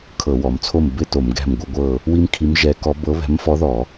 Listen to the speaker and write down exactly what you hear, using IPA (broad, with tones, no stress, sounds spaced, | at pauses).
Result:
kʰ ɤ˧˩˧ w ɔ˩˧ m t͡sʰ o˥˨ m b ɪ˥˨ t o˧˩˧ m ɡ ɛ̤˥˨ m ɡʷ ɐ˥ ɡʷ ɤ˥˨ | w i˥ m kʰ i˧˥ m ʒ ɛ˧˥ k ɔ˧˥ b ɤ˧˥ β ɛ̤˧˥ m f ɔ˧˥ ð ɔ˧˩˧